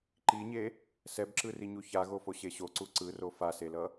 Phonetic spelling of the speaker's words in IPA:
ǃ i ɲ e | s ɛ b ǁ ɯ r i ɲ u ç a ɣ o f o ɕ e ɕ o ǀ u ǀ ɯ r o f a s e l ʌ

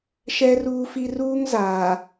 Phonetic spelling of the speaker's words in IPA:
ʃ ɛ˦ r uː˦ f i˦ r uː˦ ŋ z aː˨

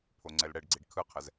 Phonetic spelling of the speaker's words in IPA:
pʰ o ŋ͡ǀ ɛ l ɽ ɛ ɖ ɡ͡ǀ i ɖ kʰ ɯ qʰ ɛ z

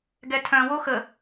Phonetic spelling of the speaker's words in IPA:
ɡ ɛ tʰ œ̃ w o x ə

